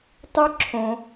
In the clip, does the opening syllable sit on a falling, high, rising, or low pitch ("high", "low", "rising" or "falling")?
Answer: high